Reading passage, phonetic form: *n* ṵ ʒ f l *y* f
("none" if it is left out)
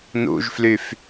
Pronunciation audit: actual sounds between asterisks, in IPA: n, y

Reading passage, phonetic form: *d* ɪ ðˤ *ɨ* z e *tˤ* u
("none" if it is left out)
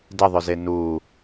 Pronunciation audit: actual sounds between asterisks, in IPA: d, ʏ, n

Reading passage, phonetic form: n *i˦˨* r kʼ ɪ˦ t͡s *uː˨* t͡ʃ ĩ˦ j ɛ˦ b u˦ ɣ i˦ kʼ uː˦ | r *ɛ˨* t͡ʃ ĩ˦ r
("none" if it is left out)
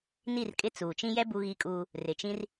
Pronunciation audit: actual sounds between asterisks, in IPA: i˦˨, uː˨, ɪ˨

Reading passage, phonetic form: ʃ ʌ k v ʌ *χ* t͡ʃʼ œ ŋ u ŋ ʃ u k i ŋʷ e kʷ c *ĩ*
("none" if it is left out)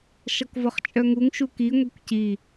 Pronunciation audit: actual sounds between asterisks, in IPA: χ, i

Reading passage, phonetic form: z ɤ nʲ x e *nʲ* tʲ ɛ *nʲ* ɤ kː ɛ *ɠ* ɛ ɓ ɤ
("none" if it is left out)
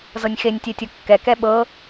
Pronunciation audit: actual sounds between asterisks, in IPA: nʲ, tʲ, k

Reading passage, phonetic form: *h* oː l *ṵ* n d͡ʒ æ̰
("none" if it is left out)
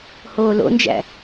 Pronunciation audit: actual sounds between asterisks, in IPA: h, o̰

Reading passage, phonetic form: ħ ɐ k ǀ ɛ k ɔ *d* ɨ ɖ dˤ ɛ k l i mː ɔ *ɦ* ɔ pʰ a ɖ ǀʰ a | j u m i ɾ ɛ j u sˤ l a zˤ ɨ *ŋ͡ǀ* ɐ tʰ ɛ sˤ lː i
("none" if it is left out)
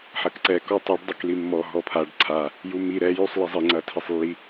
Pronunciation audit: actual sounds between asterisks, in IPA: tˤ, ɦ, ŋ͡ǀ

